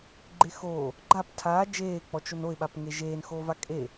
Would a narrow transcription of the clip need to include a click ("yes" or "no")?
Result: yes